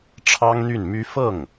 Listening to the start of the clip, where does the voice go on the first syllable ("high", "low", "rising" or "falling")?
high